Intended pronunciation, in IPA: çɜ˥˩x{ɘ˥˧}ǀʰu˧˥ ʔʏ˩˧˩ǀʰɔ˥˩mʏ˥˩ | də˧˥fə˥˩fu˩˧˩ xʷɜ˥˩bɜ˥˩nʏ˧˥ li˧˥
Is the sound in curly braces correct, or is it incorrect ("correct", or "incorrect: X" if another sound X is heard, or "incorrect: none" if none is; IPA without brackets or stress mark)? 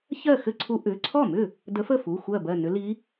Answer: correct